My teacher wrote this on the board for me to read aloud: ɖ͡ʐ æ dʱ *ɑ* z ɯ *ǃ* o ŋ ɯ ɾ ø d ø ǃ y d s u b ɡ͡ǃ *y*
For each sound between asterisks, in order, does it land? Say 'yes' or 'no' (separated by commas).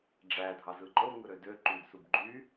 yes, yes, yes